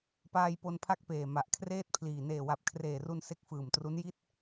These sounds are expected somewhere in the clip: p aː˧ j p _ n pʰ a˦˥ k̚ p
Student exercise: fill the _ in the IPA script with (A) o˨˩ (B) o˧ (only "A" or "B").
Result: B